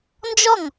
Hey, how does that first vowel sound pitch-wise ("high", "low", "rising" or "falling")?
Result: falling